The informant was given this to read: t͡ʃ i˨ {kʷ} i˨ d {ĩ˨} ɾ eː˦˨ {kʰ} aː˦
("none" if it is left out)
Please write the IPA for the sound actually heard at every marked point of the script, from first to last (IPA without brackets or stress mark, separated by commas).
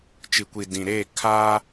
kʷ, ĩ˨, kʰ